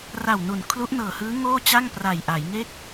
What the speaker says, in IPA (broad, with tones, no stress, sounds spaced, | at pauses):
r a˨˩ w n u˩˦ n kʰ l u˦˥ ʔ n ɤː˨˩ h ɯː˦˥ ŋ oː˥˩ t͡ɕ a˥˩ ŋ p r a˨˩ j ʔ a˩˦ j ŋ e˥˩ k̚